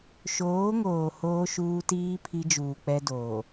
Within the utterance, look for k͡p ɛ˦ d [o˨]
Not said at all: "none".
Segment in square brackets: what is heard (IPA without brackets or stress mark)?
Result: oː˨